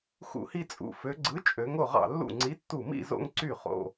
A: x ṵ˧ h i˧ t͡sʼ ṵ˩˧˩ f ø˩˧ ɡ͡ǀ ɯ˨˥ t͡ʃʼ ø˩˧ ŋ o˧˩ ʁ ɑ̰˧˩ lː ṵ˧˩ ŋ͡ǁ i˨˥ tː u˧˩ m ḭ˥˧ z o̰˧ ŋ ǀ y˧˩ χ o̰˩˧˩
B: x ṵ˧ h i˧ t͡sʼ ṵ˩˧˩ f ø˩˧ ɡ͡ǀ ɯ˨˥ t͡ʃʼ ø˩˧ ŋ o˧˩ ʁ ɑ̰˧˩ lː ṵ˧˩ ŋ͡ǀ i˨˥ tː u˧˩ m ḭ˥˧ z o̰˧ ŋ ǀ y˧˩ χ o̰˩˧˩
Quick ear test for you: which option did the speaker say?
B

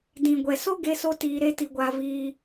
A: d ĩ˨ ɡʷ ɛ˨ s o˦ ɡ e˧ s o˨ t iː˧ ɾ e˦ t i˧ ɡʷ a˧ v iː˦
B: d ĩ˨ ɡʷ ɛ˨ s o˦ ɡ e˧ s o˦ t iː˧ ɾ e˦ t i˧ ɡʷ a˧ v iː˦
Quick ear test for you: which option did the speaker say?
B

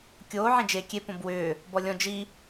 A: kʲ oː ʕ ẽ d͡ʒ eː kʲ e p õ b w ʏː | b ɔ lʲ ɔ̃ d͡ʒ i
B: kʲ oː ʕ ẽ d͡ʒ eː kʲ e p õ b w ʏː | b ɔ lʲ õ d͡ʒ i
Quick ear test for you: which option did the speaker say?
A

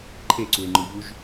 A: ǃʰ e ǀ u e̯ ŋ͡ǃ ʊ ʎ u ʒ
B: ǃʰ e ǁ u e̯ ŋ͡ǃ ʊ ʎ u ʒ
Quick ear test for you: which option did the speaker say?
A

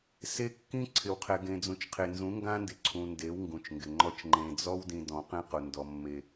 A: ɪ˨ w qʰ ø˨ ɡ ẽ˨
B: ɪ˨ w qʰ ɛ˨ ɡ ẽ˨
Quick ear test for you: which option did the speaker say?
B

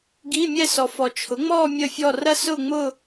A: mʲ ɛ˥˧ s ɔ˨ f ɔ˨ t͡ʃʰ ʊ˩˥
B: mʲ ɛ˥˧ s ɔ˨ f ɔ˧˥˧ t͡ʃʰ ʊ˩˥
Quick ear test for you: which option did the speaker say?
A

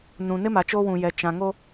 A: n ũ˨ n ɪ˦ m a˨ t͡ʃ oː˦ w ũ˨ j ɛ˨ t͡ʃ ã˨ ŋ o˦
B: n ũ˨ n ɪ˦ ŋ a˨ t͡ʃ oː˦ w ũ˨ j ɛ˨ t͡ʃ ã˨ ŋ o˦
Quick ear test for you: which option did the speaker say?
A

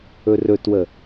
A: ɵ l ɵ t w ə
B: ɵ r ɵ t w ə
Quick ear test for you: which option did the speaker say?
B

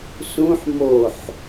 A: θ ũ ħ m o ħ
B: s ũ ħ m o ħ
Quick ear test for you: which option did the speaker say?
B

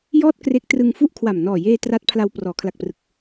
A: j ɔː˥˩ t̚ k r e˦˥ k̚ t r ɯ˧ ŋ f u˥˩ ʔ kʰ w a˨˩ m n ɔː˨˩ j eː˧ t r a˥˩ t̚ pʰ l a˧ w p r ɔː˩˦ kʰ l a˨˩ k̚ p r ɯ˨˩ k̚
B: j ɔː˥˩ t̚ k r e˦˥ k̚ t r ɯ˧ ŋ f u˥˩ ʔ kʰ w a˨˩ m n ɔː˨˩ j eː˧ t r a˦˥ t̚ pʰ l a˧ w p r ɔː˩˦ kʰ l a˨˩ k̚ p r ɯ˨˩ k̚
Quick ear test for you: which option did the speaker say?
B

